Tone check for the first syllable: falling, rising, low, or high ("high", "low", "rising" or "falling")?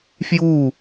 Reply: falling